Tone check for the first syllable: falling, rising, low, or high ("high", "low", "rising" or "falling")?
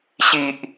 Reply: low